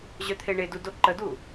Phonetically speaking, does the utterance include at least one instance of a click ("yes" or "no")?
yes